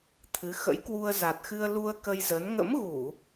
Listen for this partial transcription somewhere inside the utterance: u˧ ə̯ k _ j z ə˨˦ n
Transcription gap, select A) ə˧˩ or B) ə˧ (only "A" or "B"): B